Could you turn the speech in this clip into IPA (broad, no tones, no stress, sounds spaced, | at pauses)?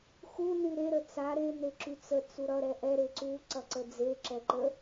x u n y ɾ e ɾ ə t͡s a ɾ e n e ǁ y t͡s ə t͡s u ɾ ʌ ɾ ɛ ʔ ɛ ɾ e ǀ u ǀ ʌ ǀ ə d͡z e ǁ ɛ ǃ ə